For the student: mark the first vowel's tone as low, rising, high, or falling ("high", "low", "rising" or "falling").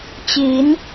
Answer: rising